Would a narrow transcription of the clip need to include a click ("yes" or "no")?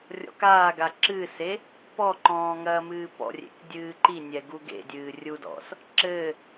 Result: yes